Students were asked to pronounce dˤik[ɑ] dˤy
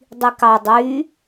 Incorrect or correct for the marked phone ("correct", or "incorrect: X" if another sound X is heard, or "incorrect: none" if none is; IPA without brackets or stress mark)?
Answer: correct